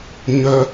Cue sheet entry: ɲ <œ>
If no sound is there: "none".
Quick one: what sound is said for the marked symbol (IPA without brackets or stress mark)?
œ